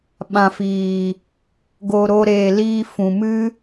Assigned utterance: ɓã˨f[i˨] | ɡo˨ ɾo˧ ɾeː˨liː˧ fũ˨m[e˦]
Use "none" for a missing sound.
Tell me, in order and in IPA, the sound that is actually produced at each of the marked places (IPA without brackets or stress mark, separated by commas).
iː˨, ɨ˦